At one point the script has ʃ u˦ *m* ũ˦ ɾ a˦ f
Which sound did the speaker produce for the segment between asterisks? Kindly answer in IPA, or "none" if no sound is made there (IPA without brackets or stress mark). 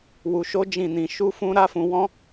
f